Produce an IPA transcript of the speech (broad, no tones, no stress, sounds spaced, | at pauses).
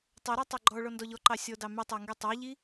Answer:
tˤ ɵ ɾ ɑ tˤ ɑ ɡ͡ǃ ɔ ɭ ɔ n d ɔ ʎ ɔ ǃ ɑ sʲ ɔ d ɑ m y tˤ æ ŋ ɡ y tˤ ɑ ʎ i